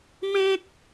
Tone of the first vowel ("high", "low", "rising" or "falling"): high